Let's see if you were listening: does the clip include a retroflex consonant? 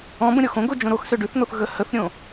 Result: yes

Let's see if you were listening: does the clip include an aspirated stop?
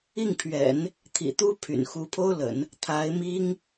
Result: yes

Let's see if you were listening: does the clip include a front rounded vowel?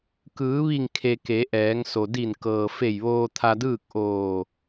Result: no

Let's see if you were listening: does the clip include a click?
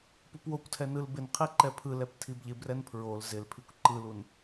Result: yes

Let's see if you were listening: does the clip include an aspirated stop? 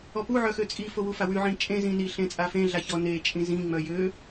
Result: no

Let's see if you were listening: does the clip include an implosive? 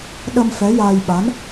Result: yes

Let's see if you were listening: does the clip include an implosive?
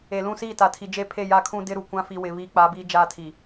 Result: no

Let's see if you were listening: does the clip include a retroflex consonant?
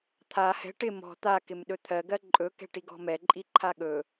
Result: yes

